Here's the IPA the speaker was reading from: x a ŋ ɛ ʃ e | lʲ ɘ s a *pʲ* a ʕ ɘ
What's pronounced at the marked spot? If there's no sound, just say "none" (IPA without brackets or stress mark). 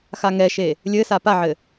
p